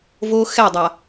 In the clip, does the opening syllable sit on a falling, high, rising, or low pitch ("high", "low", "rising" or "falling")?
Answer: high